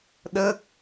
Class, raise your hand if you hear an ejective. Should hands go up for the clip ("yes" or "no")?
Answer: no